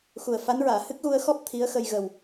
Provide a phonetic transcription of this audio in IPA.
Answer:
x u˨˩ ə̯ f a˧˥ n ɹ aː˨˩˨ h ɨ˦˥ k̚ ɣ u˧ ə̯ x ɔ˦˥ p̚ t̪ʰ i˧˥ ə̯ x ə˧ j ɣ ə˨˩ w

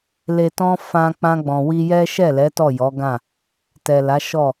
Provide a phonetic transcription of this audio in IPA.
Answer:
l e˨ t ɔ̃˧ f ã˧ k͡p ã˧ ɡ͡b ɔ̃˨ w i˧ j ɛ˦ ʃ ɛ˦˨ l ɛ˨˦ t ɔ˦˨ j ɔ˨˦ ɡ ã˦˨ | t ɛ˨ l a˨˦ ʃ ɔ˦˨

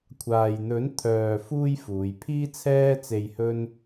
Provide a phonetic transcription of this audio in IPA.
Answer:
kʷʰ aː˨ j n̪ ɵ˨˥ n t̪ʰ œː˧ f uː˥ j f uː˨˧ j pʰ iː˥ t͡sʰ ɛː˥ t͡s e˧ j h ɵ˥ n

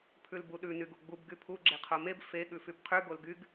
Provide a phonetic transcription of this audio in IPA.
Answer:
pʰ ʉ l b u ɗ ʉ n y ɡ u ɡ͡b u b ɡ y pʰ u ɡ͡ǁ e qʰ o m e b f e ɠ ʉ f y b qʰ ʉ ɡ o l ɡ y ɡ

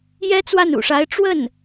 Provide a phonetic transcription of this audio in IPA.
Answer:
j ɛ˥ t͡s w a˥˩ n ṵ˨˩ ʂ a˧˥ ɪ̯ ʈ͡ʂ w ə˥˩ n

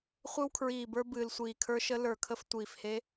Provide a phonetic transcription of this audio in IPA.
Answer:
χʷ ɨ˧ w kʰ ɹ iː˨˩ b ə˞˧ b ɨː˨˩ l sʷ iː˨˩ kʰ ə˞˧˥ ʃ ə˧˥ l ə˞˨˩ kʰ ə˧ f tʷ iː˨˩ f h e˧˥

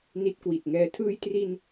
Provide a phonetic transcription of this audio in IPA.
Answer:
n i˦˥ t̚ k w i˨˩ t̚ ŋ ɛː˦˥ tʰ ɯː˧ j t r i˧ n

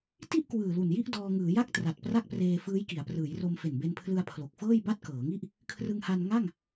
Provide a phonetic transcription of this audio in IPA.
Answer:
t i˥˩ ʔ k w ɯː˨˩ l u˨˩ n j i˥˩ ʔ d ɔː˧ ŋ ɯː˩˦ j a˥˩ k̚ t r a˨˩ t̚ p r a˥˩ k̚ p r eː˧ f ɯː˦˥ j k i˩˦ a̯ p r ɯː˩˦ j r o˧ m f e˨˩ n b e˧ n pʰ l ɯ˧ a̯ pʰ l o˨˩ k̚ f ɤː˥˩ j b a˥˩ t̚ k ɤː˩˦ ŋ i˥˩ ʔ | kʰ r ɯ˧ ŋ h a˧ n ŋ a˥˩ ŋ

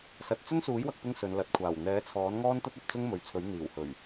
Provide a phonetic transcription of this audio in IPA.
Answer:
s ɐ˨ t̚ t͡s ɵ˥ n s uː˨˥ j w ɐ˨˥ k̚ p ɪ˥ ŋ s ɵ˨˧ n l ɐ˨ t̚ kʷʰ aː˨˩ w n̪ ɛː˨˥ t͡sʰ ɔː˨˥ n ŋ ɔː˥ n t̪ ɐ˥ t̚ ɐ˨ p̚ t͡s ʊ˥ ŋ m ɵ˨ ɥ t͡sʰ ɵ˨˥ ɥ n̪ iː˨˩ w h ɵ˨˩ ɥ

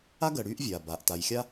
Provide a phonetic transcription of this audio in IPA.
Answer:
a˥ ɡ ɜ˨ ɽ yː˦ ʔ vʲ aː˩ b aː˩ ʔ t a˨ j xʲ a˦

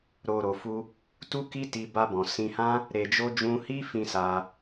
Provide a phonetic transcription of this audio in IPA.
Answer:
ɾ o˨ ɾ o˨ f u˧ | t u˦ k i˦ t i˧ b a˧ b ɔ̃˨ s ĩ˧ h ã˦ | ɾ e˨ d͡ʒ o˧ d͡ʒ ũ˧ h i˦ f ĩ˧ s a˧

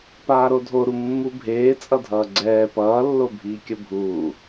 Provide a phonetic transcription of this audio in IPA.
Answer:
p aː ɾ o dʱ o ɾ u mː u bʱ eː t͡sʼ ʌ dʱ ʌː ɡ͡ǀ ɛː p ʌː lː o bʱ iː kʲ ʌ bʱ uː

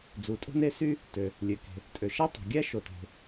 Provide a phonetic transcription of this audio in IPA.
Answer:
d͡z u˩ tʼ o̤˥ n e˥ s y˥ | t ø˩ | lʲ ø˩ k e̤˩ | tʼ ø˩ ʃ æ˥ tˤ o̤˩ ɡʲ æ˥ ʃ o˩ t e̤˩

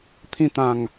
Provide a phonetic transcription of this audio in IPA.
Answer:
t̪ʰ ĩ˧ t̪ ã˨˩ ŋ

